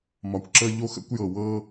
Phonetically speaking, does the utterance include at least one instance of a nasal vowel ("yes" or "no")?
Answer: no